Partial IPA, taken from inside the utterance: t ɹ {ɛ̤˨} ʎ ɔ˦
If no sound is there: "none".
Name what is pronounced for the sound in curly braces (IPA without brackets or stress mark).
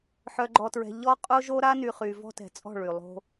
ɛ̤˨